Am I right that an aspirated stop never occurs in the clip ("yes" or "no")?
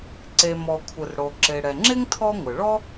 no